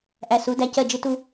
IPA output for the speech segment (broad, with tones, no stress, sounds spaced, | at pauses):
ʔ æ˨ s u˨˦ d æ˦ c ɜ˦˨ d͡ʒ ɪ˦ t u˦